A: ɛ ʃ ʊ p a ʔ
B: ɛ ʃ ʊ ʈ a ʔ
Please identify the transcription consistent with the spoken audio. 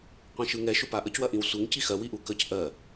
A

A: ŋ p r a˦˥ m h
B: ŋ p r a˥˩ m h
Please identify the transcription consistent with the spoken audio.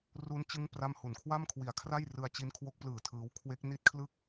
B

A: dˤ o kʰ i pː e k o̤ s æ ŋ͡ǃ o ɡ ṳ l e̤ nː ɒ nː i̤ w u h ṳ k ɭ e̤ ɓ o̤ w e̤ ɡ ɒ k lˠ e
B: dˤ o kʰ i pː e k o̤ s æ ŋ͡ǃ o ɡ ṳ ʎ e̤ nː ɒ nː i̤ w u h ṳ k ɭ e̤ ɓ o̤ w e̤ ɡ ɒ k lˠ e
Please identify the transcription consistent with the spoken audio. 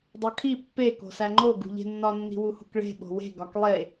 B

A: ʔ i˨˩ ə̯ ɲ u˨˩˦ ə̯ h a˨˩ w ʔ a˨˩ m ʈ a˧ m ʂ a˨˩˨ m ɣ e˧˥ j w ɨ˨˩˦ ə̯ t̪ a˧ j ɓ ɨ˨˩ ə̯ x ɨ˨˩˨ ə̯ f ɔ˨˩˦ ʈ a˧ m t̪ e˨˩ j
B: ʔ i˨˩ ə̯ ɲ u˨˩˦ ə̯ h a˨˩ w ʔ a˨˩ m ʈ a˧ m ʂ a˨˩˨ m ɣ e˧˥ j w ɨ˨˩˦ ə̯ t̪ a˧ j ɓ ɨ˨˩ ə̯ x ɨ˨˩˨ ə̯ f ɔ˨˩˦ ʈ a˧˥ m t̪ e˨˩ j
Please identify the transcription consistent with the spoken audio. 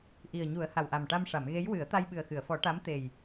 B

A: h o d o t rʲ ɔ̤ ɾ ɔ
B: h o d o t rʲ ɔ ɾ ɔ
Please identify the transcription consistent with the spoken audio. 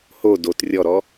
B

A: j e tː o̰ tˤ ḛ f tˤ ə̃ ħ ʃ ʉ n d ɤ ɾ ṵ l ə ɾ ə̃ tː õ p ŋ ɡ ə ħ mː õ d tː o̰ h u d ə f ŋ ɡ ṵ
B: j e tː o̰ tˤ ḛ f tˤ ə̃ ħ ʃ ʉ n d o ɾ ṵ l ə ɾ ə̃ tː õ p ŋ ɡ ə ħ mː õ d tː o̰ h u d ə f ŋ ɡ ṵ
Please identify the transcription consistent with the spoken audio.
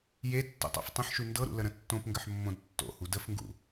A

